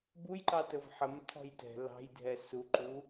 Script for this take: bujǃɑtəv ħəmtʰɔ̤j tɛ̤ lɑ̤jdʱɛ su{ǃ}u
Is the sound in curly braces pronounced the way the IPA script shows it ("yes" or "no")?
yes